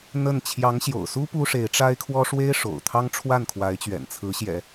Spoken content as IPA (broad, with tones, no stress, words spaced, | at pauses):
n̪ə˥˩n t͡ɕʰjɑ˧˥ŋɕjo̰˨˩ʊ̯su˥ pu˥ʂe˧˥ɪ̯ʈ͡ʂa˥ɪ̯kʰwɔ˥ ʂwe˥ɪ̯ʂo̰˨˩ʊ̯t̪ʰɑ˥ŋ ʈ͡ʂʰwa˥˩nkʰwa˧˥ɪ̯t͡ɕɥɛ̰˨˩n t͡sʰɹ̩˧˥ɕjɛ̰˨˩˦